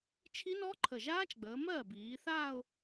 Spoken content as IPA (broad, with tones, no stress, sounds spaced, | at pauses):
t͡ʃʰ i˦˥ n ɔ˦˥ ǃʰ ə˨˩ ʒ aː˦˥ t͡ʃ ɡ͡b əː˩˧ m ɜː˥˩ b iː˩˧ θ aː˥˧ ʊ̯